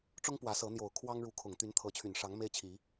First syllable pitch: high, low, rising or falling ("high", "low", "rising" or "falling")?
high